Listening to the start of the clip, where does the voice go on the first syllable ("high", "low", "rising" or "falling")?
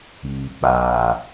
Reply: low